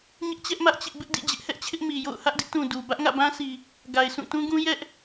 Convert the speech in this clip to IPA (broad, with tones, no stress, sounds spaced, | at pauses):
ɲ ɪ˦ ʔ t͡ɕ ɛ˦ ʔ m ä˦ ʔ t͡ɕ ɪ˦ ʔ b ɪ˦ ʔ d ḭ˦˨ d͡ʑ ɪ˦ ʔ h ɛ˦ ʔ t͡ɕʰ ɪ˦ ʔ m i˨ j o̰˦˨ ʊ̯ h ä˦ ʔ d ɪ˦ ʔ t ũ˨ d u˨ b ä˦ ʔ ŋ ä̰˦˨ b ã˦ s i˨ | ɡ a˨ ɪ̯ s ũ˦˨ t ũ˦ ɡ ũ˦ j ɛ˦ ʔ